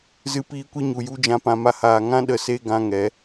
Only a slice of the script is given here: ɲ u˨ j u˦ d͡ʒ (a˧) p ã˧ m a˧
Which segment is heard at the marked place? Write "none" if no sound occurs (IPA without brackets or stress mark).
ã˧